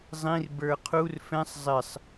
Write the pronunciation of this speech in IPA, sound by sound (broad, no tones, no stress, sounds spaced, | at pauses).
zˤ ĩ r b ə˞ qʰ u r f ɛ̃ sˤ zˤ ɪ sˤ